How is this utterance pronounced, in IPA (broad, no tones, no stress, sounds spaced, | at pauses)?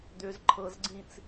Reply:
d̪ ʏ z ǃʰ ɤ z ɡ͡ǀ ĩ t͡s